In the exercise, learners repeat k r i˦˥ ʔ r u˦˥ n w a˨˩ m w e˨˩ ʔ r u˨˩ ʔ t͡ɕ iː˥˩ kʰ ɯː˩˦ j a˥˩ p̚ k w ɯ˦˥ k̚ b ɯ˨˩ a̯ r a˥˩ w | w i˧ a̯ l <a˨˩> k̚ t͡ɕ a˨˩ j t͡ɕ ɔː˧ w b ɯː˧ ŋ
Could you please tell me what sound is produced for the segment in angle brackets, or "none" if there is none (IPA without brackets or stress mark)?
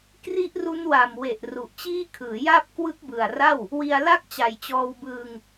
a˥˩